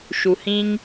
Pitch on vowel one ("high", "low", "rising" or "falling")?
low